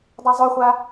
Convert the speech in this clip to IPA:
dˤ a zˤ o χʷ a

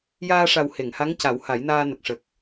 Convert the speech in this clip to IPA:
j aː˧ ʂ a˨˩ w h e˨˩˨ ŋ h a˧˥ ŋ c a˨˩˦ w h a˨˩˦ j n aː˧ n ə˨˩ k̚ ʂ ə˨˩ k̚

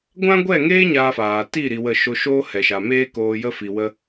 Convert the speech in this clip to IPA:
ɡʷ ã˦ ɡʷ ɛ˦˨ ŋ eː˦ ɲ aː˧ f aː˨ t i˦˨ ɾ i˧ w ə˦˨ ʃ o˧ ʃ oː˦ h ɛ˨ ʃ a˨ m eː˦ k oː˧ j ə˦ f i˧ w ə˦

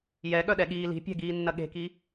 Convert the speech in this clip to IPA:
j ɛ ɠ œ ɗ ɛ ɠ iː l i̤ pʲ ɛ̤ ɡ iː nː ɐ ɠ e̤ k i

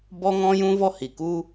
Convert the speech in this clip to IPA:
b ɔ˦ ŋ ɔ̃˦ j ũ˦ v ɔ˦ h i˨ k u˦

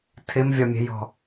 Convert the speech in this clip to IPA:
tʰ ɪ m vʲ ɒ mʲ ɛ̤ j ɔ̤

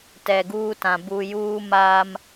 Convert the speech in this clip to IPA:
t ɛ˨ ɡ uː˦ t ã˨ b u˨ j uː˦ m aː˦ m

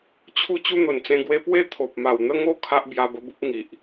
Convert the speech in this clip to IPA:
t͡ɕʰ u˥˧ t͡ɕ u˦ n̪ o˨˩ n t͡s ẽ˧ ɡ w e˧ p w e˦ t̪ʰ o˨ p̚ m a˨˩ w n̪ ə˦ ŋ o˥˧ kʰ a˦ ʔ b j a˧ b ə˧ b u˦ p̚ ŋ i˨ ʔ

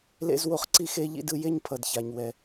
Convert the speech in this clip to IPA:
l ḛ˥ z w o˥ χ ǀ i˥ x e˧ ʎ ḭ˥ d ɯ˧ j e˥ ɲ pʰ ʌ˩ d ç a˩ ɲ w ɛ˩

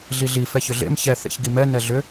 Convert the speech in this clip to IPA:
ɮ i ɮ i f ɛ ç ʏ ɮ ḛ m ç ɛ θ ḛ ç ɡ i m ɛ n ɛ ɮ ʏ

